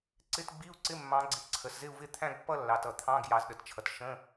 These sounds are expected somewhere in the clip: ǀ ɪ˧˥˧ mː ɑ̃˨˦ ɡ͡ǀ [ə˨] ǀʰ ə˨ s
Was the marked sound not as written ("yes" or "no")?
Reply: yes